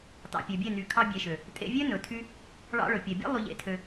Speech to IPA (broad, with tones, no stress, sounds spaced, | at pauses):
t ɑ̰˨ pʲ ø˨ bʲ e˦˨ n y˨˦ kʰ ɑ˧ bʲ e˨ ʃ ø˨ | tʼ ḛ˧ vʲ ø˦ n ɵ˨ tʰ y˧ | ɭ ɑ̰˧ ɭ ɵ˨ pʲ ɛ˨ bʲ ḛ˦ lˠ y˧ ʎ ḛ˧ tʰ ø˧